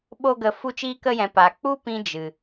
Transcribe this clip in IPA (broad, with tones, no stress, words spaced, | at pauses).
ɓo˧ɡə˨ fu˧t͡ʃiː˧kə˧jɛ̃˨ pa˨k͡pu˦ pĩ˦d͡ʒɨ˨